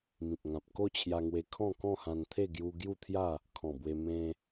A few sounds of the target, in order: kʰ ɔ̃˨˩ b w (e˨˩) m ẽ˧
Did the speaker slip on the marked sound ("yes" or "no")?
yes